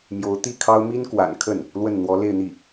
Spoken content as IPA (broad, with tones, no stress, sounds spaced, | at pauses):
m j o˧˥ ʊ̯ t̪ i˥˩ kʰ ɑ˥ ʊ̯ m i˥ n k w a̰˨˩ n kʰ ə˥˩ n | l w ə˥˩ n n̪ w ɔ˧˥ l e˥˧ ɪ̯ n̪ i˥˩